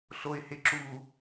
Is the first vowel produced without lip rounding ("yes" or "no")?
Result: no